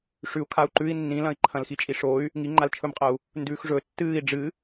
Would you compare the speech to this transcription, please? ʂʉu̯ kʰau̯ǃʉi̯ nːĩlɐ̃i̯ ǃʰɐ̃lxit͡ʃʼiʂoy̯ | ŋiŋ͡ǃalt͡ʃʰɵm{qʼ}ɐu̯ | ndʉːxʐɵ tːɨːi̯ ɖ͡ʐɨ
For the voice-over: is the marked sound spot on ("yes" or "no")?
yes